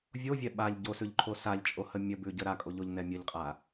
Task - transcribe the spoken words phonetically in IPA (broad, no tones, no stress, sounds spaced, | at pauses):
vʲ o vʲ ɛ ɓ a ʎ ɟ o s ʉ ʎ ǃʰ o s a ʎ t͡ʃʼ o h ə mʲ ə b ʉ ɟ ə ɾ a kʼ o ʎ o ʎ n ɛ mʲ ə ʎ qʼ a